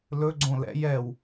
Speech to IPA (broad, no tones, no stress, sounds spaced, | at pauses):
l ɵ ɡ͡ǀ õ l ɛ̰ j ɛ w